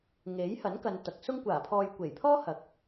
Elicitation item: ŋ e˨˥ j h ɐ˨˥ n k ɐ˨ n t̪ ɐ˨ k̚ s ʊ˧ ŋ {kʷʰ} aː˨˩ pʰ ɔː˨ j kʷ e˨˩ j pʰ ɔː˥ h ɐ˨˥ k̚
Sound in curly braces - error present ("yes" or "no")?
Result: yes